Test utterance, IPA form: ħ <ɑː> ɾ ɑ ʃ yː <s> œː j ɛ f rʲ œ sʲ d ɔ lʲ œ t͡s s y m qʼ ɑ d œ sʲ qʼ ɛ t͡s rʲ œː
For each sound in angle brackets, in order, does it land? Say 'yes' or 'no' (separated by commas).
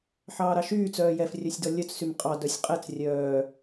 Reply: yes, no